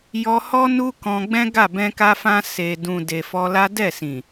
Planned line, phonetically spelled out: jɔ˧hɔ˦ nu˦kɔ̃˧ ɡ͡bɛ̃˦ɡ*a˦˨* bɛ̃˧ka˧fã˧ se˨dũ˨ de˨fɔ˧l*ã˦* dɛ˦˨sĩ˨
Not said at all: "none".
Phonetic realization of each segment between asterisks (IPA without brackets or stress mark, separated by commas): a˦˨, a˦